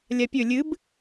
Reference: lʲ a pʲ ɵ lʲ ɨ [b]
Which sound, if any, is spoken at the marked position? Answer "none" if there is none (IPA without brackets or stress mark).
b